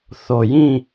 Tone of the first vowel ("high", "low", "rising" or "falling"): low